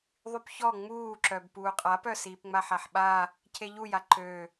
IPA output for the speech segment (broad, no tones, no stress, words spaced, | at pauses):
ðˤypçɔ ŋ͡muːǁœb puːqʼapœ siːpŋ͡maħaħɓa | cʰeʎuja ǃø